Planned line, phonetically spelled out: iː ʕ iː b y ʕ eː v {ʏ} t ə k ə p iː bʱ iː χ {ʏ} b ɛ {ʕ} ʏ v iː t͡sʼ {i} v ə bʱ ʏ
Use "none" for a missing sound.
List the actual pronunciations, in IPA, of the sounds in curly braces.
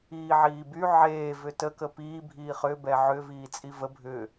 ʏ, ʏ, ʕ, i

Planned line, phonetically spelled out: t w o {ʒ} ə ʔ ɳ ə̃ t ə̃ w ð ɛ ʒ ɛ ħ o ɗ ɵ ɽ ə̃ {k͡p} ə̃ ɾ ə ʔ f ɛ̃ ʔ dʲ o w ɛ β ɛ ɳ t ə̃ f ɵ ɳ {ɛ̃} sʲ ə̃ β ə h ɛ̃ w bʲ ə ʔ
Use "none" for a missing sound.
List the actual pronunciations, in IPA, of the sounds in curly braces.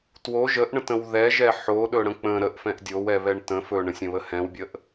ʒ, k͡p, ə̃

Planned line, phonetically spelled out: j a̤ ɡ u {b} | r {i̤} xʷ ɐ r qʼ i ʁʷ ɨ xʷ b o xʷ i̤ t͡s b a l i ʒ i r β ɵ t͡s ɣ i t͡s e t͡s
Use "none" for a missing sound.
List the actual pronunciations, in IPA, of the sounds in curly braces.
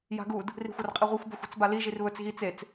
d, i̤

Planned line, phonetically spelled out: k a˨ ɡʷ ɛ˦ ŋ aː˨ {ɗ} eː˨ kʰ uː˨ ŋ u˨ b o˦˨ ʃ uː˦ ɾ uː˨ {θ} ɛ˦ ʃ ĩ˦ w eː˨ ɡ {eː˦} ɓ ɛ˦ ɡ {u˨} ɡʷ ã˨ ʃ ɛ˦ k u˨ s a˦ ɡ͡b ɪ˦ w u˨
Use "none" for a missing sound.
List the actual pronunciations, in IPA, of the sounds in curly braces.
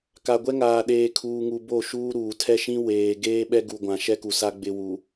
ɗ, tʰ, eː˦, u˨

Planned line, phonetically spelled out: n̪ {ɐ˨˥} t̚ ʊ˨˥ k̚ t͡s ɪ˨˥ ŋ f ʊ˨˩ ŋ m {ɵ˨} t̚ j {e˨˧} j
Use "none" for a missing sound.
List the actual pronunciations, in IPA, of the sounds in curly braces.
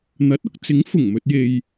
ɐ˨˥, ɵ˨, e˨

